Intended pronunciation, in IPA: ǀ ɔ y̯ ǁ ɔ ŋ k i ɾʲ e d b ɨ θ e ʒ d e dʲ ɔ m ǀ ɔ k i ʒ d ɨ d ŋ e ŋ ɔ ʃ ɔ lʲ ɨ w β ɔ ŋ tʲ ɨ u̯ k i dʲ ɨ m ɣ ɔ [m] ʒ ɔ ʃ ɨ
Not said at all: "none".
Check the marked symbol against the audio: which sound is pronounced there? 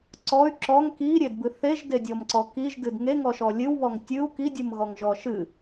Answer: ŋ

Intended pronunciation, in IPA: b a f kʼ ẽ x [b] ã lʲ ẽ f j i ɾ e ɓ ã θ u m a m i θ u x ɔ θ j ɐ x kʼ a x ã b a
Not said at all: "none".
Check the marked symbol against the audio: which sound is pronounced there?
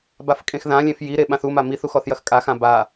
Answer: ð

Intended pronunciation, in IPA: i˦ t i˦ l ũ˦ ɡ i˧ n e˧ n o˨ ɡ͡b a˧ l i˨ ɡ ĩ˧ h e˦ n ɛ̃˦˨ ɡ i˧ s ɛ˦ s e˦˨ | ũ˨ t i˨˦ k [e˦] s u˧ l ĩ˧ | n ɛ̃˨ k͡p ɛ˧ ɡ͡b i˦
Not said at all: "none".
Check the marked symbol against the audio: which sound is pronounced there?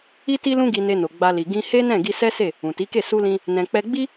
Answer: e˦˨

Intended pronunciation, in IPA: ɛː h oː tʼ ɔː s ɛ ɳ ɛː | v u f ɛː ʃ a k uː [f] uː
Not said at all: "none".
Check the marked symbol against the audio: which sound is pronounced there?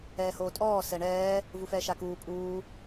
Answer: pʼ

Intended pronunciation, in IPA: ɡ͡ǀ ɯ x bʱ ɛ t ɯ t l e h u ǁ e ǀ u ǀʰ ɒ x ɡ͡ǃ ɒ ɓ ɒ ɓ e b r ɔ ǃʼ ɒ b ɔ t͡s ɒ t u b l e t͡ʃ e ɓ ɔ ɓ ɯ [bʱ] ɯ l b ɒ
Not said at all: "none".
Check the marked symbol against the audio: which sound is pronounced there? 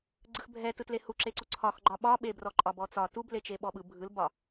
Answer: bʱ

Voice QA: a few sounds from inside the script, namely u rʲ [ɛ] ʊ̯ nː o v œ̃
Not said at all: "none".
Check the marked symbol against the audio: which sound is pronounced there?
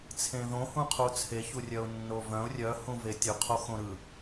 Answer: œ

